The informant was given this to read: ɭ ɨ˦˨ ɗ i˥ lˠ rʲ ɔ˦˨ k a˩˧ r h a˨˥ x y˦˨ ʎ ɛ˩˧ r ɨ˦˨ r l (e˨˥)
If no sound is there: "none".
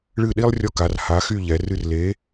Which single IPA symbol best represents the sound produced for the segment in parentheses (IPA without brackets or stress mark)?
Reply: e˨˥